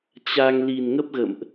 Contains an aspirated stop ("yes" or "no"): no